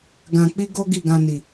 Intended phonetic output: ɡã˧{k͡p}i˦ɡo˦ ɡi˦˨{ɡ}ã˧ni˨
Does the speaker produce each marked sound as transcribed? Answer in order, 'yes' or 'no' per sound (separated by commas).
yes, yes